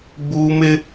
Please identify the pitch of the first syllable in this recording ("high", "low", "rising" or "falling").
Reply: high